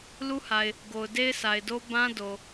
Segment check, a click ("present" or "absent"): absent